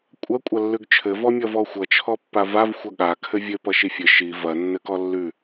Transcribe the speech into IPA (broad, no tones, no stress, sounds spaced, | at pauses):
kʷʼ ɐ kʷʼ ɐ lː ʉ ɡ t͡ʃʰ ɘ v ɔ mʲ ʌ v ɔ xʷ ʌ t͡ʃʰ ɔ pː a v a v xʷ ʌ ɠ a kʰ ɘ vʲ ɘ p ʌ ʃ i fʲ ɘ ʃ i v ɐ nː ɘ k ɔ lː ʉ